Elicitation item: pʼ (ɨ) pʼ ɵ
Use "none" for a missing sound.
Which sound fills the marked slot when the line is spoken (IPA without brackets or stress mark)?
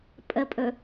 ə